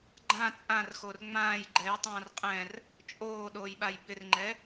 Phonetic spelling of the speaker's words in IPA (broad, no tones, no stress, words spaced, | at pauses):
ɡ͡ǃã t͡sʼãrxor ŋ͡mãːj ɡ͡ǃɛjtˤãːr qʼɛ̃r | t͡ʃʼoːɗoːjɓaj bɪrŋ͡ǃɛ